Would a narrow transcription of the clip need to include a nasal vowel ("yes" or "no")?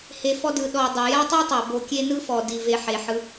no